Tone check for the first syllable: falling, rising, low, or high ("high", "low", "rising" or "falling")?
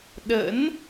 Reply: rising